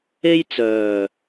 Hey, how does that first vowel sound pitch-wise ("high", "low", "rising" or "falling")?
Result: high